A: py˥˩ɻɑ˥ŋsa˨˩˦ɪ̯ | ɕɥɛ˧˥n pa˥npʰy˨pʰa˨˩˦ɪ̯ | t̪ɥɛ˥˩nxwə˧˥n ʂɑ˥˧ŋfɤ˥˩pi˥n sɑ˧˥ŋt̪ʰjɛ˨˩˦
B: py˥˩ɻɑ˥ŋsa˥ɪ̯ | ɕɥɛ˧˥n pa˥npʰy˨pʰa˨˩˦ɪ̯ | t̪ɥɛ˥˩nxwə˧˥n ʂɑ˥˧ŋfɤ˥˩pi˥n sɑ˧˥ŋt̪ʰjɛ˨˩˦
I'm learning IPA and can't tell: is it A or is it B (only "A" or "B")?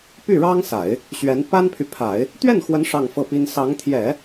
A